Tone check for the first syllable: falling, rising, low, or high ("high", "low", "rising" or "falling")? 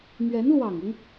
rising